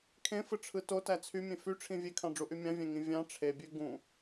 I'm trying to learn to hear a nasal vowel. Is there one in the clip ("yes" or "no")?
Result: yes